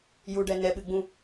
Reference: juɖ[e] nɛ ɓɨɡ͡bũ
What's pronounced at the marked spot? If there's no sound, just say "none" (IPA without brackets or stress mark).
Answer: ɛ